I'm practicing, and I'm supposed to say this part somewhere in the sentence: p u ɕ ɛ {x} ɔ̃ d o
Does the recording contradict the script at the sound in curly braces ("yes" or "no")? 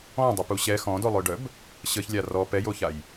no